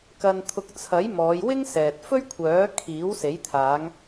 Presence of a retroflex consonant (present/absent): absent